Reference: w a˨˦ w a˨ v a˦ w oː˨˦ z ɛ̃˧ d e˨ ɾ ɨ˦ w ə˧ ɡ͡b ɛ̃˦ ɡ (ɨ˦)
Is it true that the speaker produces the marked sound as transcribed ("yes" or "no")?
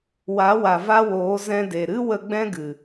no